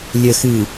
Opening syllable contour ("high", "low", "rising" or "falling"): low